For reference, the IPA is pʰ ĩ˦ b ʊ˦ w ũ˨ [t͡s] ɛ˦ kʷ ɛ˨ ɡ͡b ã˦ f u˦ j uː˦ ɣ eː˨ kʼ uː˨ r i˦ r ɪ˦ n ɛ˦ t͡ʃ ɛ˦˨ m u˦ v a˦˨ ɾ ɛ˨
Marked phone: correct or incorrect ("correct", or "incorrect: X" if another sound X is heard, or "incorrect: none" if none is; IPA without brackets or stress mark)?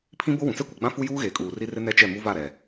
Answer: correct